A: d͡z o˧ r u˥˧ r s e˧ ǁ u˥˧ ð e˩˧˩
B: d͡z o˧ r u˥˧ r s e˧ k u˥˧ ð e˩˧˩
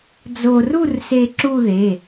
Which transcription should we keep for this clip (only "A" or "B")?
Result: A